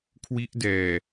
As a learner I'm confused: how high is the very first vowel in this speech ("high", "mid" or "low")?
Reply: high